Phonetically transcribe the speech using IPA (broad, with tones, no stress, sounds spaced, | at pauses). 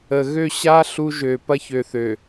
ə˨ ɣ ø˦˨ ɕ a˦ ɬ u˦ ʒ ø˨ p ɐ˦ ç ø˨ θ ø˨